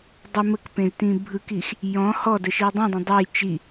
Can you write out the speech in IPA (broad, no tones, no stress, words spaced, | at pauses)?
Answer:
dˤə məkpẽztĩ bʱɯkix | jɔ̃ hɔdəʃi dˤĩdˤə̃ dˤej t͡ʃi